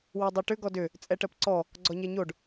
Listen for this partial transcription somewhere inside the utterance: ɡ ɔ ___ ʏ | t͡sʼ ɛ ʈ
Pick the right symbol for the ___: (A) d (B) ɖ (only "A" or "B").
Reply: A